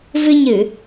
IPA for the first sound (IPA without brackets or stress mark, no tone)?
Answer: v